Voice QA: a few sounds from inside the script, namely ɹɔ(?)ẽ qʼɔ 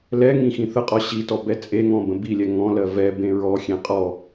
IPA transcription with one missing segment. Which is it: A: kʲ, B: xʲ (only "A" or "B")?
B